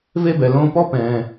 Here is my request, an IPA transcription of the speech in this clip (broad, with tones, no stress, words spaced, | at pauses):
ve˦bɛ˩ lõː˦pɔ˥ pɛ̃ː˩